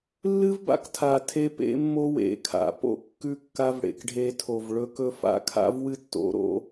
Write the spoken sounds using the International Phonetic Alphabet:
lː ɨ˦ v b a̰˧ k tʰ a˨ tʰ e˧ p ḛ˧ mː o˧ w ḛ˨ kʰ a̰˨ p o̰˦ kː ʉ˧ kː a˧ v ɽ ḛ˨ k ɖʱ e˧ tʰ o˨ v ɭ ɵ˦ k ɵ˦ f a̰˦ kʰ a̰˦ v w ɨ˦ tː o̰˧ ɾ o̰˦

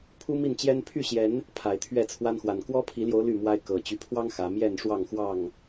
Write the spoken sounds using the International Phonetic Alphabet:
pʰ u˦ m i˥˨ n t͡ɕ j ɛ˦ n pʰ y˥˨ ɕ j ɛ˨˦ n | pʰ a˨˩ ɪ̯ t̪ʰ ɥ ɛ˥˨ t͡sʰ w a˦ n x w a˨˩ n k w ɔ˦ pʰ i˨˦ l j o˨˦ ʊ̯ l y˥˨ m w a˦ ɪ̯ k ɤ˨˩ t͡ɕ y˨˦ pʰ w ɑ˦ ŋ x ä˨˦ m j ɛ˥˨ n ʂ w ɑ˥˨ ŋ x w ɑ˥˨ ŋ

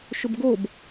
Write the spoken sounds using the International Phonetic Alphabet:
ʃ ɵ b ɡ o b

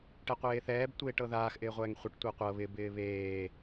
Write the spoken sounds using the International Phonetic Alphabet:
ʈ ɛ qʷ eː θ ɛː b tʷ eː ʈ ɤ ð aː x ʔ ɪː ʁʷ ɛː ŋ χʷ i ʈ tʷ ɛ qʷ ɤ β ɪ b ɪː β eː

